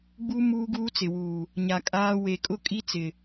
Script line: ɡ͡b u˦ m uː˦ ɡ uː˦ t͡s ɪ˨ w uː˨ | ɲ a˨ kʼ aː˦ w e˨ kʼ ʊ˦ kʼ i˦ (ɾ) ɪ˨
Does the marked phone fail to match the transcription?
yes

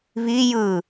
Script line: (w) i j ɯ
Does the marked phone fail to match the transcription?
yes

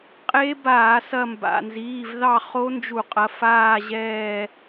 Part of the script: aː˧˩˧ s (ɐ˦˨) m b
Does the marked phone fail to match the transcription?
no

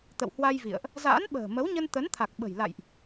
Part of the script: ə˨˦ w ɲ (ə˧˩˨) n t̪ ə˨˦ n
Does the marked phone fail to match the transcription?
yes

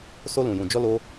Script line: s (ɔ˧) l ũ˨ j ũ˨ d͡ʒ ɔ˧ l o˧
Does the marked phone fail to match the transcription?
yes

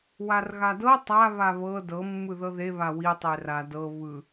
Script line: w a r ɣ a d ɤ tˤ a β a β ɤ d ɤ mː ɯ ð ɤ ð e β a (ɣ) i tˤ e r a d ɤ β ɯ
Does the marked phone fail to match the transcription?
yes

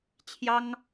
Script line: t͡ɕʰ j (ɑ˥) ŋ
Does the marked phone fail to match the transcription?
no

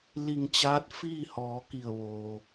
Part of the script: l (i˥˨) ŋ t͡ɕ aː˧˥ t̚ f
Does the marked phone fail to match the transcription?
yes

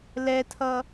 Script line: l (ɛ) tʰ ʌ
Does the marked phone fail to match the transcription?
no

